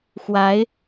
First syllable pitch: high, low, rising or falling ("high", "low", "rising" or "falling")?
rising